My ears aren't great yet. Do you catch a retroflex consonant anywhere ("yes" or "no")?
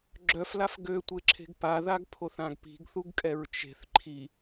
no